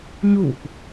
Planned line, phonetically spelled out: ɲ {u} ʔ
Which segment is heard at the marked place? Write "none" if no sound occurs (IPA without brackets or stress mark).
u